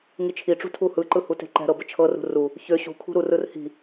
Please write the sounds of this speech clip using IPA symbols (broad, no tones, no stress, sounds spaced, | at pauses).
ŋ i t͡ʃʰ i ʈ͡ʂ ṳ tʰ u h ɯ ǃ ɯ h u t e̤ ǃ ɛ̤ ɾ ɤ b ə t͡ʃʰ ɤ r ṳ r u | ç ø ɕ ṳ kʰ ṳ ɾ u r ɯ r h i̤